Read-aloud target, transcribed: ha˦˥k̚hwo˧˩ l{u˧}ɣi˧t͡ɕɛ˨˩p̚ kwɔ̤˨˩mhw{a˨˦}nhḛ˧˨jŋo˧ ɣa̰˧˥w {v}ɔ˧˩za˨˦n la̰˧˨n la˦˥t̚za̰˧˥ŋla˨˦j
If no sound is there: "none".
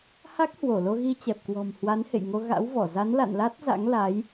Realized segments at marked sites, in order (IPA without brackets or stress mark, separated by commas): o˧, a˨˦, v